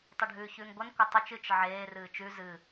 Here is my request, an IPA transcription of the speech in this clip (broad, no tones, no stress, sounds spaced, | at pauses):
tˤ e ɖʱ ʉː ç ʉː ŋ ɡʷ ɐ n kʷ ɐ tˤ ʉ t͡ʃ ɨ t͡ʃ ʕ eː r ɨː t͡ʃ ʉ z ɨ